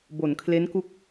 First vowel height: mid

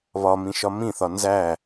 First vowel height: low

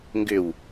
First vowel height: high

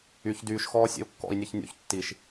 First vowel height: high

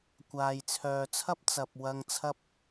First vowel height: low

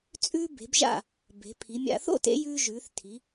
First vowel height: high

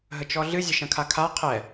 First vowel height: mid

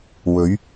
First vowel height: mid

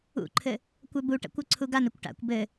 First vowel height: high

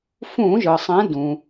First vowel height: high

